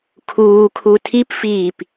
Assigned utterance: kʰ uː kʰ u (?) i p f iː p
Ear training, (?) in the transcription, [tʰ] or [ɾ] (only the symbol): tʰ